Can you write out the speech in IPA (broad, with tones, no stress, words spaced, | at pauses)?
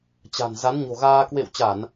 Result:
t͡ɕa̤˨˩n za˨˦nɲo̤˨˩ɣaː˧ kwḛ˧˨wt͡ɕa˧˩˨n